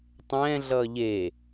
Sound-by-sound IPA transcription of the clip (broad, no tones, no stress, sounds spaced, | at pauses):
tˤ ɛ̃ː ɮ ʌː ʎ eː